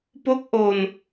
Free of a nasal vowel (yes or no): yes